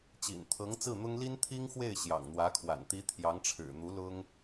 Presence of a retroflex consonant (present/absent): present